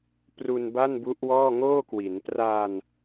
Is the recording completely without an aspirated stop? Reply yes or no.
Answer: yes